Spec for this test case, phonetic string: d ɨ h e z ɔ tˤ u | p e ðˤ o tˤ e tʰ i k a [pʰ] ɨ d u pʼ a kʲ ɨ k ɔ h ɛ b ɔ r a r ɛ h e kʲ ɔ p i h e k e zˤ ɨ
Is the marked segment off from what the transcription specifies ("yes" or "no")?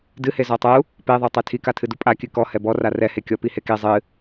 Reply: yes